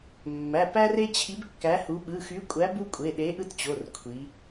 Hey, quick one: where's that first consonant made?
lips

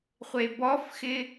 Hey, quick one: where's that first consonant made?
uvula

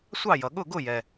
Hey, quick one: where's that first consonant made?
tongue tip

